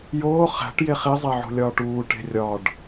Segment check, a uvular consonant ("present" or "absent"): present